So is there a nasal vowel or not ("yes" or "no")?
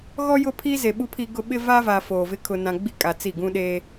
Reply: yes